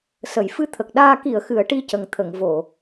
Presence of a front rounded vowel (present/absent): absent